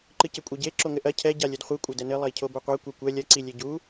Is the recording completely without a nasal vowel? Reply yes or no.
yes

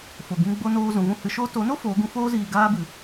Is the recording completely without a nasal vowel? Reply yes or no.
no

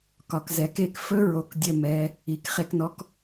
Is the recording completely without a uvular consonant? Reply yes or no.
no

